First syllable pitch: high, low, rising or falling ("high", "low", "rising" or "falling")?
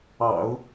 low